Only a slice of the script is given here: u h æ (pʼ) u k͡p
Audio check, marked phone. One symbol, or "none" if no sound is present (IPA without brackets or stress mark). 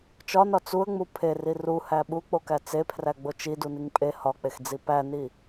ɓ